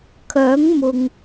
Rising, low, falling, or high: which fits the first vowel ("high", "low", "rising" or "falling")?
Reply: rising